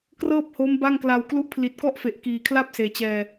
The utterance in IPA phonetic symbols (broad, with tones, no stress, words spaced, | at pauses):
krɤː˥˩p̚ho˦˥mba˥˩ŋkla˧w klu˥˩ʔ pʰli˨˩t̚kɔ˥˩ʔfe˨˩ʔ kiː˨˩kʰla˥˩p̚ seː˨˩t͡ɕɛː˧